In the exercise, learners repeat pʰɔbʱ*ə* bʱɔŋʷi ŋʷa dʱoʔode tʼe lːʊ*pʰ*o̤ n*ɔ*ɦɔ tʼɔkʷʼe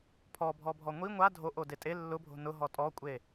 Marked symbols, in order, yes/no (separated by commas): no, no, no